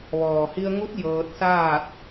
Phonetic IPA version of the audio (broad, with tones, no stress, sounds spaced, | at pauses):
ʋ ɔː˩ h i˧ ə̯ ŋ u˧˥ t̚ j ɤː˧ t̚ s aː˥˨ t̚